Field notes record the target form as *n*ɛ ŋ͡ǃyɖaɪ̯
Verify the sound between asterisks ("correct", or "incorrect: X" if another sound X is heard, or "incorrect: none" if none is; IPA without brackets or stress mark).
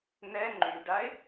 correct